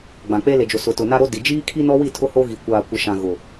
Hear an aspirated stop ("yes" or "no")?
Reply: yes